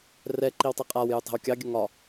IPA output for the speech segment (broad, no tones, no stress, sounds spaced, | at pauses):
r ɛ ǃ i w tˤ i qʼ a w j u tˤ ɛ̤ w kʲ ɑ ɡʲ ə ŋ ɒ